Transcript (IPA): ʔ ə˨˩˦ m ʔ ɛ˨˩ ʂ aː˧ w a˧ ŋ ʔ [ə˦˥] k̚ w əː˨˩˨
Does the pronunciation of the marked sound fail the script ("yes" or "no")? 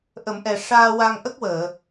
no